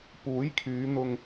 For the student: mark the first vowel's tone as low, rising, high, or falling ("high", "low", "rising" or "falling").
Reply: rising